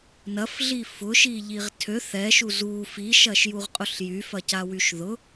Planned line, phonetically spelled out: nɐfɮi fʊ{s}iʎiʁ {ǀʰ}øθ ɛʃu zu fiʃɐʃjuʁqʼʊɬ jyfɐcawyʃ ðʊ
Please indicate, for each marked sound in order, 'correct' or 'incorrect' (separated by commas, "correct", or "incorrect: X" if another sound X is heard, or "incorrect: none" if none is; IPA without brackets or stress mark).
incorrect: ʃ, incorrect: tʰ